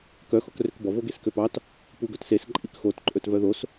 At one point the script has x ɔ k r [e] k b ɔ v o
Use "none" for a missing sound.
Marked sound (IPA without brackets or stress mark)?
ø